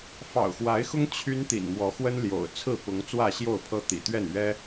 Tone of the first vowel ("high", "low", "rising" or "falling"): low